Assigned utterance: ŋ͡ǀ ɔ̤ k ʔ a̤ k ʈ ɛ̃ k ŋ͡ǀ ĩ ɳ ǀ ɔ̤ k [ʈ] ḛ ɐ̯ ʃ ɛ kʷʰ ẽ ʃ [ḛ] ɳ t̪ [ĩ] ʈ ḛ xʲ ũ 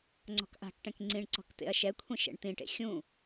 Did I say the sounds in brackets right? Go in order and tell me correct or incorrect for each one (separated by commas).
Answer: incorrect, incorrect, correct